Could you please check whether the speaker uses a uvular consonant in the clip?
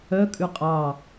yes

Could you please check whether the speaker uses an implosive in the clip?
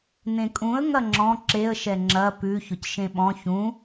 yes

